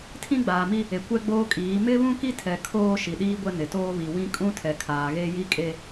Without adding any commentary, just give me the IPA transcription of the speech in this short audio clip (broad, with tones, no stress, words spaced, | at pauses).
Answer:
tʰĩ˦ɡ͡baː˨mi˦ | e˨kʷɛ˦ɡ͡boː˦kʼiː˨˦ mɪ˦βũ˦ki˦tʰɛ˨ kʰoː˦ʃi˨ ɗiː˦ɡʷɛ˦nɪ˨toː˦ βi˨wĩ˦ kʼũ˦tʰɛ˨kʰaː˨ ɣe˦ji˦kʼe˦